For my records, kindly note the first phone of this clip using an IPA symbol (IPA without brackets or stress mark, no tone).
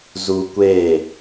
z